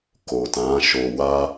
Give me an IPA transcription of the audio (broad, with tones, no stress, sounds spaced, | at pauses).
k o˨ t ã˨˦ ʃ o˧ w a˦